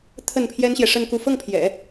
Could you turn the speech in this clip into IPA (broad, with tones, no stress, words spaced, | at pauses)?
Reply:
t̪ʰə˥˩npʰjɛ˥nɕjɛ˨ ʂə˥˧nku˥˧ fɤ˥˩ŋpʰjɛ̰˨˩˦